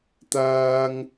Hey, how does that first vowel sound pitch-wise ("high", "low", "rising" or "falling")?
high